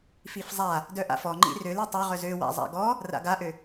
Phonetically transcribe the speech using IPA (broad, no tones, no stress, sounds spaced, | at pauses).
f i f zˤ a | d œ ʔ a̰ f ɔ ŋ͡ǃ ḭ r ø l i tˤ ø ʁ œ z ø w a̰ zˤ a̰ ɡ ɔ | r a̰ ɡ a ʔ ø